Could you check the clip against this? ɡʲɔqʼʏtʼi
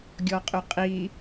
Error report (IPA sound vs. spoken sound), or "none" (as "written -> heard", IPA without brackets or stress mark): tʼ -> qʼ